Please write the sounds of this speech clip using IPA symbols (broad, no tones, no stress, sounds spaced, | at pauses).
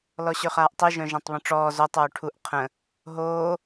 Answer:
l ɔ ɕ ø χ aː ʔ tˤ i ʒ œ̃ ʒ ã tˤ β ə̃ ʈ͡ʂ ɔː z o tˤ oː ʈʰ u ʔ qʰ ə̃ | ɦ oː